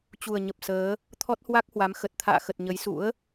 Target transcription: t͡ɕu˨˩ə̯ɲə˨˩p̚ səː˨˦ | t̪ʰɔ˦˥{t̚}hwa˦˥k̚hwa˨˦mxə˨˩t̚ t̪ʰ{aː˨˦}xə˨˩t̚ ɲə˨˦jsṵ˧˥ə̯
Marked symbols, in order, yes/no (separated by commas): yes, no